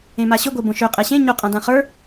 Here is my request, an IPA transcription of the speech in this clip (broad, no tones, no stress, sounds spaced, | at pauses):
ẽ m a ɕ ʏ ɡʷ e b õ ʃ ɵ qʼ ɛ ɕ ẽ ɲ o qʼ ã d ã χ ə˞